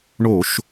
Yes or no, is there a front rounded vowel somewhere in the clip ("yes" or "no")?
no